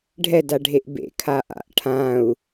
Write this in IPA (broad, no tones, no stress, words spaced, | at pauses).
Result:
ɖʱɛd aɖʱeʔbḛ kʰaʔa̰ʔ ʈʰãu̯